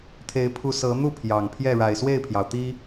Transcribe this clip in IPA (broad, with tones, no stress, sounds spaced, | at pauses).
t̪ʰ e˨˦ ɪ̯ pʰ u˨˦ s ɤ˨˦ n̪ u˥˨ pʰ j ɑ˨˩ ŋ pʰ j ɛ˥˨ ɻ a˨˩ ɪ̯ s w e˥˨ ɪ̯ pʰ j ɑ˩ ʊ̯ t̪ i˦